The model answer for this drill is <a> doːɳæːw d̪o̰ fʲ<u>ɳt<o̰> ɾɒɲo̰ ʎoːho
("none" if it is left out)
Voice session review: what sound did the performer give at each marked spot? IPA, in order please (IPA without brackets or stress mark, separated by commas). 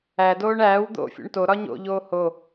æ, ṵ, o